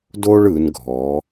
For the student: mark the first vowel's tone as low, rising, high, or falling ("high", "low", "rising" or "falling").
high